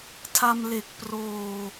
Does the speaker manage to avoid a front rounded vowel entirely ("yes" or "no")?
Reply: yes